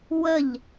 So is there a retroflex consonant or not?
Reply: no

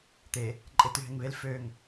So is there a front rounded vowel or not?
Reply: yes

